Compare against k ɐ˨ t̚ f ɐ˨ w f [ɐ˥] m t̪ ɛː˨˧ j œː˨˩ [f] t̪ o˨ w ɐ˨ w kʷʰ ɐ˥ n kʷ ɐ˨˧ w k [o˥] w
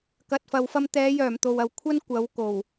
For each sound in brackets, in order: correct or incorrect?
incorrect: ɐ˧, incorrect: m, incorrect: o˨˩

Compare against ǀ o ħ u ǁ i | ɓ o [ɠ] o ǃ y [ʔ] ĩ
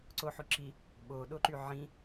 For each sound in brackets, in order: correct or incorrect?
incorrect: ɗ, incorrect: ʕ

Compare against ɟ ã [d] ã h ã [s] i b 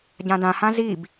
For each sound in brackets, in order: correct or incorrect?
correct, incorrect: z

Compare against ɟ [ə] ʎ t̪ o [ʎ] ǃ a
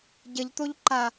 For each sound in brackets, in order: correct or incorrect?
correct, correct

